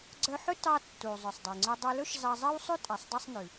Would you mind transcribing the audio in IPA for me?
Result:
ɡ͡ǀ œ˧ ħ ɵ˥ t ɑ˧ tː u˩ zˤ œ˩ sˤ dˤ i˩ ŋ͡ǀ o˧ dˤ ʉ˧ l ɵ˥ ʃ z ɑ˧ zˤ e˥ w sˤ ʉ˥ tʼ æ˩ sˤ dˤ ɛ˧ sˤ n ʉ˩

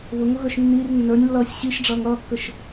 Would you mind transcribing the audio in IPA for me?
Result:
β ʊ ŋ ʊ ɣ ə˞ ʃ nː i r nː ə˞ nʲ lː ʌː sʲ ɕ i ʃ ɖ͡ʐ ʌː ŋ ʌː kː ə ʃ

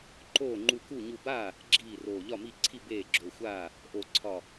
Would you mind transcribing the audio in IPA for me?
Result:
ǃ oː˥˩ ŋ͡ǃ u˧˩ k u˥˩ ɲ u˧˩ b aː˥˩ | ɡ͡ǁ iː˥˩ r oː˧˩ ʎ ɒ˥˩ m i˥˩ ǀʰ i˥˩ b eː˥˩ ɡ͡ǁ o˧˩ xʷ aː˥˩ | ʔ o˧˩ ǀʰ ɒ˧˩

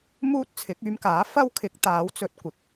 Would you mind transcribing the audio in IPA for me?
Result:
m uː˥ t̚ t͡sʰ ɪ˨˥ k̚ yː˧ m k aː˨˥ f ɐ˥ w kʰ ɪ˨˥ k̚ t̪ aː˨˥ w t͡s ɵ˨ t̚ kʷ ɪ˨ k̚

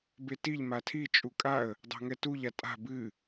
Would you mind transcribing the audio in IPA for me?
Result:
b e t i ʎ m a tʰ i t͡ʃʼ u kʼ a ə̯ | dˤ a̤ ŋ ɛ t u ʎ a tʼ a̤ b ɨ

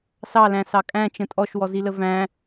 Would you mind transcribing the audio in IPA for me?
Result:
s ɑ l æ̃ s ɑ kʼ æ̃ t͡ʃ ə̃ tʼ ɔ ʃ w ɔ z i l ə v æ̃

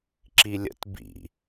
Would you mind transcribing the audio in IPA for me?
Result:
ǁ i lʲ ə̰ t b ḭ

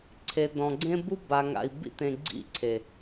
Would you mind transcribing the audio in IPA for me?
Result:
ǀʰ e˨ d ɔ̃˨ ɡ͡ǀ ẽ˦ b u˦ b a˨ ŋ a̰˨ i̯ b ḭ˦ t ẽ˨ ɡ͡ǀ ḭ˦˨ ǀʰ e˨

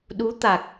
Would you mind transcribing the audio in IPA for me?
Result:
ɗ u˧˥ t̪ a˨˩ k̚

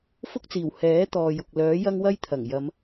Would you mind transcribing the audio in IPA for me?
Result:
f ʊ˥ k̚ t͡s iː˨˩ w h ɛː˨˥ t̪ ɔː˨ j ʊ˨ k̚ l œː˨˥ j ɐ˥ ŋ w ɐ˥ j t̪ʰ ɐ˨˩ ŋ j ɐ˨˧ m

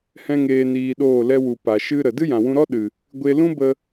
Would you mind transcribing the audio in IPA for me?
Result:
h ɛ̃˦ ŋ eː˧ n iː˧ ɗ oː˦˨ l ɛ˧ w u˨ p a˨ ʃ ɨ˦ ɾ ə˨ d ɨ˦ j ã˨ w ũ˧ ɾ ɔ˦ ɗ ɨ˨ | ɡʷ e˧ l ũ˦ b ə˧

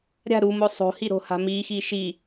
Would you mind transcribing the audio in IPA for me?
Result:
ɾʲ a̤ ɾ u m o sˤ o̤ h i ɾ o̤ h a̤ m i x i ʃ i

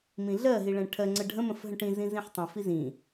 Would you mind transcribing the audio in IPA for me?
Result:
m ĩ ɮ ɜ ɦ i ɭ ɛ̃ ʈʰ ɜ ŋ͡ǀ ə ɖʱ ə̃ m ə̃ f ɦ ə̃ ʈ ĩ z ĩ z ĩ ħ tˤ ə̃ f i z ĩ

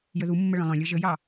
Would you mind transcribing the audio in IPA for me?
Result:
j ə ð u mː ə ɭ œ̃ lˠ œ̃ lʲ ɤ ʒ ə j ɑ

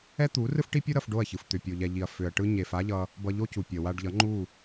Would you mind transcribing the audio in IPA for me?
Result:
ɛ˦ t̪ u˨˦ r ɯ˦ f ʈ i˦ pʲ o˦ ɾ ʌ˧ f ɖ o˦˨ ɐ̯ ç ɯ˨ f t̪ ʏ˨ pʲ o˨ ʎ ɛ˨ ʎ i˨ ɐ̯ f ʏ˨ ɐ̯ ʈ ɯ˧ ɲ e˨ f a˦ ʎ ʌ˧ | b ʌ˧ ʎ o˦ c u˨ pʲ ʌ˨ w a˧ ɖ ʎ ʌ˨˦ ŋ͡ǃ u˦˨

